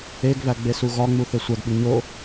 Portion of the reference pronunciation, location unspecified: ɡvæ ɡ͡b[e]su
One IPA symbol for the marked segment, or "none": e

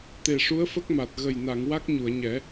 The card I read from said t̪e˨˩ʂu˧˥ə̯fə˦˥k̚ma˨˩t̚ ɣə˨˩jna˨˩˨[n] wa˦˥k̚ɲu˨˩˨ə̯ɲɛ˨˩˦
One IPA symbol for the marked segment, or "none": ŋ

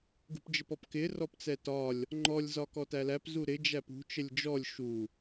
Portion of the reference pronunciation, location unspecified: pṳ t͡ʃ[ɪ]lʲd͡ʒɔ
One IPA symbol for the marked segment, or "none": ə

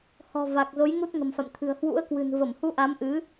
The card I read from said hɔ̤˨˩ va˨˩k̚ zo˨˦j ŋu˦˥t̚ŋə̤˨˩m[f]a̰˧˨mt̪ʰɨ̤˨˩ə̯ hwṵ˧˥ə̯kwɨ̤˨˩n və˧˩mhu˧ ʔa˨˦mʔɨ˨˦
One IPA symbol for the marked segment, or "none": f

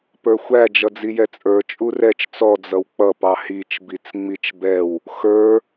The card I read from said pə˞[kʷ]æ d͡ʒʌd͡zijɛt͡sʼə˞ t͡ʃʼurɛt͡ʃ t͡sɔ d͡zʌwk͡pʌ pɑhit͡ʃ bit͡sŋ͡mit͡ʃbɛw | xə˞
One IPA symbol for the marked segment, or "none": xʷ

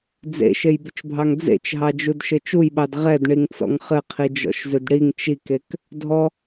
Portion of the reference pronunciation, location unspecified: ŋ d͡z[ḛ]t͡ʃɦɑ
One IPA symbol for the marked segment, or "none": ḛ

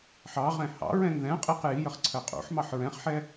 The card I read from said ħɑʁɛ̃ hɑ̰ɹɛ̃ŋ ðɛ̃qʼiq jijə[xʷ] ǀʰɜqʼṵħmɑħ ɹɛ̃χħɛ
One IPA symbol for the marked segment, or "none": χ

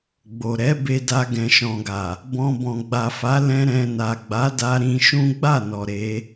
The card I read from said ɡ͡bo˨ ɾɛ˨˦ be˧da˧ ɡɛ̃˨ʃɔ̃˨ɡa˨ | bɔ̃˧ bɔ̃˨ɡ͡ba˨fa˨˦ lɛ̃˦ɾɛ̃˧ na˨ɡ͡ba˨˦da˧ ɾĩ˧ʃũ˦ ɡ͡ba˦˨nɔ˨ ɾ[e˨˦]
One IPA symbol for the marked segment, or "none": e˨˦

